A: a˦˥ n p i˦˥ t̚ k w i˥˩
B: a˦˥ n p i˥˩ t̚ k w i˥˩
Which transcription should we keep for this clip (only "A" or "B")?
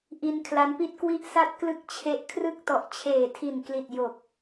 B